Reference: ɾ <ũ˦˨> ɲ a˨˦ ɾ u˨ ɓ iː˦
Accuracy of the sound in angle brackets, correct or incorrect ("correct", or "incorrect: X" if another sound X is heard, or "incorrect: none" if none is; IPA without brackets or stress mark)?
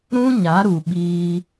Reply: incorrect: ũ˦